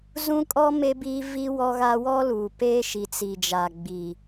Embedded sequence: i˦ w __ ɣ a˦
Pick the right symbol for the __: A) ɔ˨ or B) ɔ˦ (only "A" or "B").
B